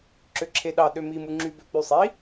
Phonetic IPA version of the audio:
ǁ ø ǁʰ e ɗ ɑ ɗ ø m i m u ŋ͡ǁ y b ø k͡p y sˤ i

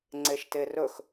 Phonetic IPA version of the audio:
ŋ͡ǀ e ʃ t e r ɵ x

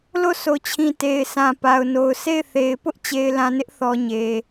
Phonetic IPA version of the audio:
l o˦˨ s o˨ t͡ɕʰ ĩ˨ t e˨ ɪ̯ sʰ ã˨ p a˨ ʊ̯ n o˨ ʊ̯ sʰ e˦˨ ɪ̯ θ e˨ ɪ̯ p ʊ˦ ʔ t͡ɕ e˨ ɪ̯ l ã˨ n ɪ˦ ʔ θ ɔ˨ ɲ e˨

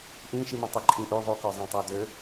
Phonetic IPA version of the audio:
ʔ ĩ ʃ i m ɛ̃ tˤ i ǃʼ ĩ ʔ ʉ ðˤ ʉ k œ zˤ ĩ tˤ æ d ø

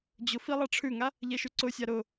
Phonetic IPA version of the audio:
d͡ʑ ʊ f i lˠ ɑ ʈ͡ʂʰ ʉ ŋ a | ʎ ɛ ʃ ʉ ǀ ʊ sʲ a ɾ ʊ

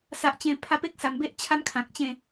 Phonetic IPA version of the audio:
s a˨ ʔ t͡ɕ ẽ˨˩ pʰ a˧ p e˦ k̚ s a˨˩ m b e˦ ʔ t͡ɕʰ a˦ m kʰ ã˨ k̚ t͡ɕ ẽ˥˧

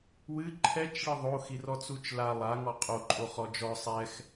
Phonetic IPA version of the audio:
w ɨ ǃʰ ɛ t͡ʃ ɭ ɨ ðˤ o x i r ɔ t͡s u t͡ʃ l a lˠ a ŋ ɔ qʼ o ǃʼ o χ ɔ d͡ʒ ɔ sˤ ɛ x

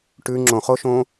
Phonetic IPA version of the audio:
ʈ ʉ ŋ͡ǁ õ χ o ʃ õ

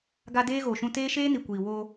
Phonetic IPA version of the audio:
ɡ a˦ d eː˦ ɣ o˨ ʃ ũ˦ t eː˦ ʃ eː˦ n i˨ kʷ iː˨ w o˦

